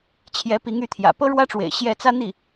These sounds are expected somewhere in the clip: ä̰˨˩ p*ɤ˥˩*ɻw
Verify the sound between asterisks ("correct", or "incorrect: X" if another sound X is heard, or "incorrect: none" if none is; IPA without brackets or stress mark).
incorrect: ɤ˥